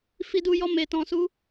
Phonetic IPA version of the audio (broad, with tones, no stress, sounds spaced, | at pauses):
f i˧ d u˧ j ɔ˧ m e˨ t ɔ̃˨ s u˨˦